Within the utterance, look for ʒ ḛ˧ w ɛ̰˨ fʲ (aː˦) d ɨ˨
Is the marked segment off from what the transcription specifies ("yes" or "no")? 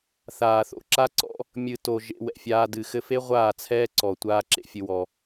yes